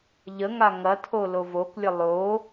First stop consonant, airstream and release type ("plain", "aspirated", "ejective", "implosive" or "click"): aspirated